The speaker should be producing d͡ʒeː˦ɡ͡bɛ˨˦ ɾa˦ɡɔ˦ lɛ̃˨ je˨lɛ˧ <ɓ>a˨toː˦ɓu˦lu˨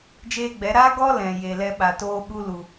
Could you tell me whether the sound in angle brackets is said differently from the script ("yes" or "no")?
no